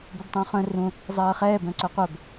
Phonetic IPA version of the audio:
b ɛ b tˤ ũː χ œ̃ r ũ | zˤ ɜː χ ɛː b œ̃ ǀ œ qʷ œ b

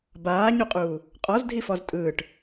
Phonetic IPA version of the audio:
b aː ɲ u qʼ uː | qʼ ɔ z dʱ i f ɔ z tʼ ɯː ʈ

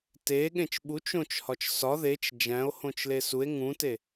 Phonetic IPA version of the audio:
t e ɠ ẽ t͡ʃ ɓ u t͡ʃ õ t͡ʃ h ɒ t͡ʃ s ɒ ð e t͡ʃ d͡ʒ æ̃ o̯ h õ t͡ʃ l e s u e̯ ŋ ũ t e

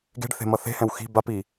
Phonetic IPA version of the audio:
ɡ e̤ ɖ θ e̤ m ʌ θ e̤ h ɛ̃ w x i̤ b a p i

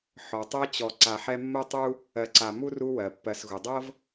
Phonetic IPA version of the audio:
ħ ɔ˩ tˤ ɤ˦ t͡ɕ ɔ˨ ǀ a˨ ħ ɛ˦ mː ɜ˥ tˤ u˥ | ɜ˨ ǀ a˨ m u˥ r u˦ w ɜ˩ pː ɜ˨ s ɣ u˩ dˤ ɤ˥ v

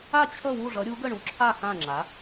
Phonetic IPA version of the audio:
a˥˨ t͡ɕʰ ʌ˥˨ w u˥˨ ʐ ʌ˨˥ ɾʲ u˨˥ ɡ ə˥˨ ɳ u˨˥ ǁʰ a˥˨ x ã˥˨ ŋ͡ǁ a˨˥

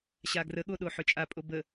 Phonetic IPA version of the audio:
ɕ a ɡ r ə ɠ o ɗ o ħ ʏ t͡ʃʼ a pʼ o b ə

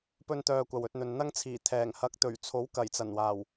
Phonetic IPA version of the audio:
p ɵ˥ n t̪ œː˧ kʷ ɐ˨ w ɵ˧ t̚ n̪ ɵ˨ n n̪ ɐ˥ ŋ t͡sʰ iː˨˩ t̪ʰ ɛː˨˩ ŋ h ɐ˨˥ k̚ t̪ ɵ˨˩ ɥ t͡sʰ o˨˥ w k ɐ˨˩ j t͡s ɐ˨˩ n w aː˨˩ w

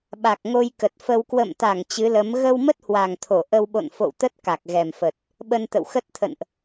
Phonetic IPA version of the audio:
ɓ a˨˩ k̚ ŋ o˧ j k ə˨˩ t̚ f ə˧ w k w ə̰˧˨ m t̪ a˧˩ ŋ t͡ɕ ɨ˨˦ l ə˨˦ m ɣ ə˧ w m ə˦˥ t̚ h w a˨˩ ŋ t̪ʰ o˧˩ ʔ ə˧ w ɓ o̰˧˨ n f o̰˧˨ w t̪ ə˦˥ t̚ k a˨˩ k̚ ɣ ɛ˨˩ m f ə˨˩ t̚ | ɓ ə˧ n t̪ ə̰˧˨ w x ə˦˥ t̚ t̪ʰ ə̰˧˨ n ʔ

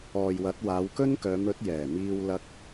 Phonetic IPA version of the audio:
ɔː˨ j w ɐ˨˥ t̚ w aː˨˧ w k ɵ˥ n k œː˨˧ m ɵ˨˥ t̚ j ɛː˨˩ m iː˧ w l ɐ˧ k̚

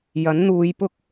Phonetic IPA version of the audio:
j ɐ˨˥ n n̪ uː˨˧ j p ʊ˥ k̚

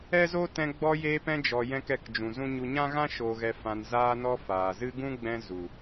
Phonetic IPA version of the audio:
ɛ˦ z o˦ t ɛ̃˧ ɡ͡b ɔ˧ j eː˧ p ɛ̃˧ d͡ʒ ɔ˨ j ɛ̃˦ k ɛ˦˨ k d͡ʒ ũ˨ z ũ˦ ɲ u˧ ɲ ã˦ ɣ ã˦ ʃ o˧ ɣ ɛ˧ f ã˧ n z aː˧ n ɔ˧ f aː˨ z ɨ˦ ɡ ũ˦ ɡ͡b ɛ̃˧ z u˨

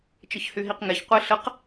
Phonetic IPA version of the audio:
t͡ʃ ə ç h y ɦ i q ŋ ɛ ç qʷ e ɬ ə q

